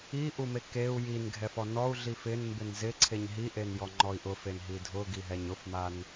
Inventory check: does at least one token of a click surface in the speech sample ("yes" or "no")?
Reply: yes